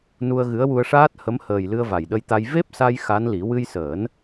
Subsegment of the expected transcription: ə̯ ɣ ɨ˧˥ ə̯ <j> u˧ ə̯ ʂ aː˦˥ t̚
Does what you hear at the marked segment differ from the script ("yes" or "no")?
yes